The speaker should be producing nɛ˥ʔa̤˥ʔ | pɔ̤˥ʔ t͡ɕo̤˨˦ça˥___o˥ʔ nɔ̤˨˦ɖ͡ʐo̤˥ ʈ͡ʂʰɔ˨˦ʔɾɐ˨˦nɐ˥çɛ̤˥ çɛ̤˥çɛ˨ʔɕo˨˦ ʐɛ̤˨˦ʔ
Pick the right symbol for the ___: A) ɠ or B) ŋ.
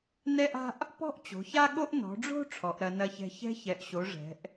A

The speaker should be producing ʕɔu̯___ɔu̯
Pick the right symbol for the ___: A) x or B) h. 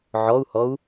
B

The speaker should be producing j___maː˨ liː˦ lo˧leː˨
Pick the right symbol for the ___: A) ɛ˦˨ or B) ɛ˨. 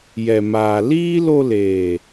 B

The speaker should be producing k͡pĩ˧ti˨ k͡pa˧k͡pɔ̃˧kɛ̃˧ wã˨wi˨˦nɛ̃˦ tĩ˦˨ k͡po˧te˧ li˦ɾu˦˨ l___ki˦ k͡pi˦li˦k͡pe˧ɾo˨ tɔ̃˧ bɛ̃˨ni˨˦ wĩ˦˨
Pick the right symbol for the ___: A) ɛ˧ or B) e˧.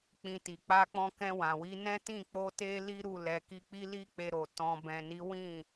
A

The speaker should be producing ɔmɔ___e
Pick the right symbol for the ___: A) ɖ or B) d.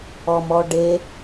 A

